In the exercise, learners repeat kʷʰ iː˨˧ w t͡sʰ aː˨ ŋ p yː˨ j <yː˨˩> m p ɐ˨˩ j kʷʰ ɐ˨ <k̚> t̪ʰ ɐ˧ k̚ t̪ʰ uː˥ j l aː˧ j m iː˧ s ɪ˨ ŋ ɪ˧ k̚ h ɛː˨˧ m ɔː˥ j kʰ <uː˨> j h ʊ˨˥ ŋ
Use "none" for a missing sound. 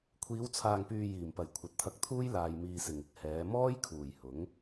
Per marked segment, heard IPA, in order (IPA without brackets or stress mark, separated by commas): iː˨˩, t̚, uː˨˩